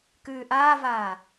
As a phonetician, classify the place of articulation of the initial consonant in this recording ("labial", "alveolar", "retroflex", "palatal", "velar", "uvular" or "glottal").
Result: velar